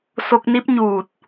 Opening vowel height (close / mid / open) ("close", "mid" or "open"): mid